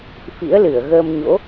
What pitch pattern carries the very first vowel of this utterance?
rising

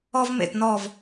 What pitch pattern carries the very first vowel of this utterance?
high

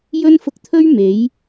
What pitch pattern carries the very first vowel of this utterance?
high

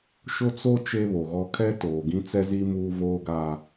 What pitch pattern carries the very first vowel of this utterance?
high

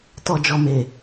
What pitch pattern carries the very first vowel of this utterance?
low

